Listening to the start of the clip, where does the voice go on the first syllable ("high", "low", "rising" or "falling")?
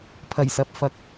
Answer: low